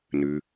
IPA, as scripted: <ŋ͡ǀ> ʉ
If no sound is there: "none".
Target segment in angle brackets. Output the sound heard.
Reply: n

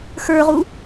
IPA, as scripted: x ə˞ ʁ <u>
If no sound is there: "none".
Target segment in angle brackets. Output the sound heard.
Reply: u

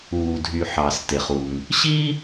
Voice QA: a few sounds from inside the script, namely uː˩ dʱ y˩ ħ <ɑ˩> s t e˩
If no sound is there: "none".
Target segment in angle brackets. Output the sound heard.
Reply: ɑ˩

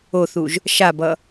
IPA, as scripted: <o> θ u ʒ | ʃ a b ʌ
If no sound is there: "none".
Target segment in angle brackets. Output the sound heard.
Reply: o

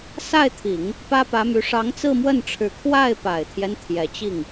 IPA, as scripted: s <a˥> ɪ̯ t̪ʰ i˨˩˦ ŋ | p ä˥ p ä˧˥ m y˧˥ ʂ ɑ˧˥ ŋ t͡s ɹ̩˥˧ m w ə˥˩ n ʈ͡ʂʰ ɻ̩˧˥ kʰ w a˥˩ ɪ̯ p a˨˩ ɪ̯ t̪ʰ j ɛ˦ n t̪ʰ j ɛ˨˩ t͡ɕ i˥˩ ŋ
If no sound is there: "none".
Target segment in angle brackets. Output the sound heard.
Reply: a˥˩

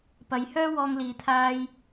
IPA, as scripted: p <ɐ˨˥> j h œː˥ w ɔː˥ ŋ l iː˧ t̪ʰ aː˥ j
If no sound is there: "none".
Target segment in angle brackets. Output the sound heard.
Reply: ɐ˨˧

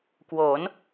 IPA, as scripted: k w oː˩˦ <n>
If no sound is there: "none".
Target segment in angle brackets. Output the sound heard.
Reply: n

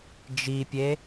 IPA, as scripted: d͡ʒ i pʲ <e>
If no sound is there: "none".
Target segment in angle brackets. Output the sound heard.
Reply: e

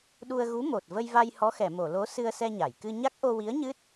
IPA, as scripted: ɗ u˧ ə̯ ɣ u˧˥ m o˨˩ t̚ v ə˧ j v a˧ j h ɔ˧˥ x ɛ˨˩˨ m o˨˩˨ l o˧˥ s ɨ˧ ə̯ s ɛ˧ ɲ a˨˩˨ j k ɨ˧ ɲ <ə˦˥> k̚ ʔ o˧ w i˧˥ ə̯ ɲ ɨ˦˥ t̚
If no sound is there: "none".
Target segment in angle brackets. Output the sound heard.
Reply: a˦˥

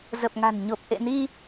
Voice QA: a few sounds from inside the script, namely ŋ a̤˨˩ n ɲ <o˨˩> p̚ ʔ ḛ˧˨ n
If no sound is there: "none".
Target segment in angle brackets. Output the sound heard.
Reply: o˨˩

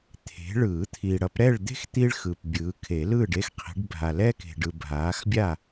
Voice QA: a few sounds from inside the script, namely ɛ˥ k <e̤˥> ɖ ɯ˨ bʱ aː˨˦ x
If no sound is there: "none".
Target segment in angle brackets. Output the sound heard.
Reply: e̤˨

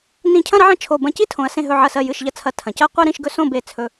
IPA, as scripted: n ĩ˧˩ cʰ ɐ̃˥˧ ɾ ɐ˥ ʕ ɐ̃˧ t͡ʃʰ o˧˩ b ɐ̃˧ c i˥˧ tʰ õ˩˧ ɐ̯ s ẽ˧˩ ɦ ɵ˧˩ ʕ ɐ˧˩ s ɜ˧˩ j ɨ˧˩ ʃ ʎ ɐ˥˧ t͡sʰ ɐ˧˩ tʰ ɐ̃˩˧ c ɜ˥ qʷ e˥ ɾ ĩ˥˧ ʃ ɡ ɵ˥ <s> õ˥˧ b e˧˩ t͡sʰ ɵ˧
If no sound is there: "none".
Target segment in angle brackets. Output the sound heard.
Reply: s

